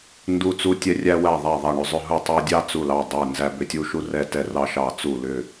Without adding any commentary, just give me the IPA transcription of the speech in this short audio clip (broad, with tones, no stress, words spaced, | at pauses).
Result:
ndu˧˩t͡su˧tʲɛ˧ rʲæ˧ wæ˧˩ðˤæ˧˩ðˤɑ˧˩ ɳʏ˧˩zˤʏ˧˩ɦu˧˩tˤæ˧ dʲɑ˧ t͡su˧˩lɑ˧˩ dˤɛ˧˩ nzæ˧ bʏ˧˩tʲu˧ʃu˧ rɛ˧tɛ˧˩ rɑ˧ʃɑ˧˩t͡su˧˩ lʏ˧˩